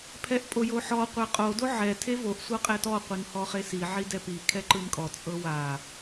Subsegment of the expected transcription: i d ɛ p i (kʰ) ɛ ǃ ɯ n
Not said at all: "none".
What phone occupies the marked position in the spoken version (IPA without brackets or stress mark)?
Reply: kʰ